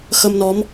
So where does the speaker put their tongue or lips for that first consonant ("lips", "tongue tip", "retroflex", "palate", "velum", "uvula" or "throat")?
velum